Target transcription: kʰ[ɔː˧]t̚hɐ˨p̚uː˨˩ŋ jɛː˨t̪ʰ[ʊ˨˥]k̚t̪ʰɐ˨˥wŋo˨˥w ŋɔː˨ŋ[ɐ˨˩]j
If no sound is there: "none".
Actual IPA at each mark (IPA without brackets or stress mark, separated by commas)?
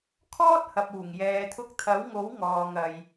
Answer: ɔː˥, ʊ˧, ɐ˨